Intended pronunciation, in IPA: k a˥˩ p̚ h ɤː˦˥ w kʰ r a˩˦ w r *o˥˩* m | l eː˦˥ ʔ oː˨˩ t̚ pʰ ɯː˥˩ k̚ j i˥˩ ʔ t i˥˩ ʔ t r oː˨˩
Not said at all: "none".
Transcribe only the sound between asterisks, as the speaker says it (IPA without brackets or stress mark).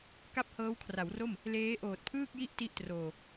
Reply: o˥˩